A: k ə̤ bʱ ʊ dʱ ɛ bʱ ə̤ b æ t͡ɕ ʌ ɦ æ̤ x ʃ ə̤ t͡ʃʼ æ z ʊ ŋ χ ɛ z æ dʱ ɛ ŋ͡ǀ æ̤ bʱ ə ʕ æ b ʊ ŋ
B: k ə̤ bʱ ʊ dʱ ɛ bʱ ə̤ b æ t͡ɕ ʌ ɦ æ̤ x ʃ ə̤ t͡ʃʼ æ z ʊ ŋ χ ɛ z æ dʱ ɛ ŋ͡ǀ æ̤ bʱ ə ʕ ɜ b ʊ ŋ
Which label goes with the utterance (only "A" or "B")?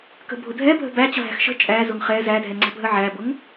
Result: A